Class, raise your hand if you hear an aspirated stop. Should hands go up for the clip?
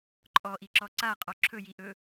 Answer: yes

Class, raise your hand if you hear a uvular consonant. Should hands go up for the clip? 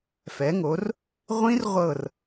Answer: yes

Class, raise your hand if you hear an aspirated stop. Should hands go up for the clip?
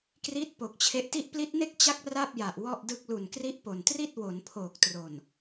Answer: yes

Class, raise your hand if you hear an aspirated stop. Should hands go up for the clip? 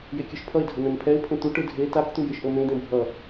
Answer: yes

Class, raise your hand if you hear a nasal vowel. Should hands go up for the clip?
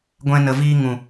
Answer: yes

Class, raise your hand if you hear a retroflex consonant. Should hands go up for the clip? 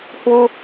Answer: no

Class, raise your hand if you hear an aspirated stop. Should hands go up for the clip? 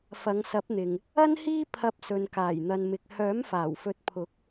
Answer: yes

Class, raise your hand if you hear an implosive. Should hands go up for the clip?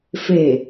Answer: no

